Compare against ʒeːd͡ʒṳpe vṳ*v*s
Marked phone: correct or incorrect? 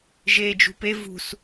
incorrect